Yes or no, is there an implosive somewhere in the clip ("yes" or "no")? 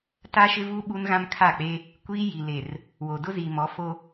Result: yes